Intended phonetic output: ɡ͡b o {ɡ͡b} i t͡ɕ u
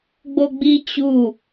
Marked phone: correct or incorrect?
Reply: correct